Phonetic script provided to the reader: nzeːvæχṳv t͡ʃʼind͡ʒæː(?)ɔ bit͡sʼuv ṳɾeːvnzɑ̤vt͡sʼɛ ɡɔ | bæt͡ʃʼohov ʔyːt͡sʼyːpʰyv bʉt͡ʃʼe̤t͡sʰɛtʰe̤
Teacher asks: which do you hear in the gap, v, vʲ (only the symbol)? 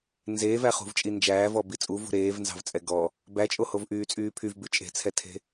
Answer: v